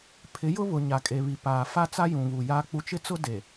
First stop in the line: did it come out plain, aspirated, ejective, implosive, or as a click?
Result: aspirated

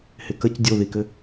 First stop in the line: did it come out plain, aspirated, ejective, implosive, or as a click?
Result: plain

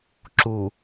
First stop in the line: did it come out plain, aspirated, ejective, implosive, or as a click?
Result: click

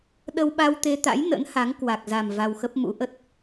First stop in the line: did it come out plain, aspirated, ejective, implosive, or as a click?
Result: implosive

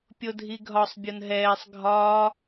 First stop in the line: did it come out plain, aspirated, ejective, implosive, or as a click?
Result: plain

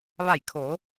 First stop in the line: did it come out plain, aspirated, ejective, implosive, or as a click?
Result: aspirated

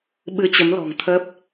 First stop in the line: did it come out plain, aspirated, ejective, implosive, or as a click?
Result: implosive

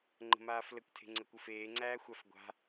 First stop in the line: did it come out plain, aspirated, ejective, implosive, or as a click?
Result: click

